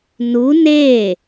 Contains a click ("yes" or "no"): no